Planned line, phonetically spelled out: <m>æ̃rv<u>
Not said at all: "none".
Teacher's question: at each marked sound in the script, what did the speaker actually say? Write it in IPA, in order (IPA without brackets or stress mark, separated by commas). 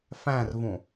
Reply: f, ũ